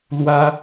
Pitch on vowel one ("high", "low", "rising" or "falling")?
high